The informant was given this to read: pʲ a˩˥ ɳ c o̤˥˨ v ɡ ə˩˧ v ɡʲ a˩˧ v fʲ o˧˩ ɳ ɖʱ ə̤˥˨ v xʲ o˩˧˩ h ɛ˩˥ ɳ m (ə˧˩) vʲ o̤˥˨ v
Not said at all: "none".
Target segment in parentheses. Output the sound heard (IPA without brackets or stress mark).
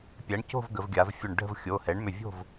ʏ˧˩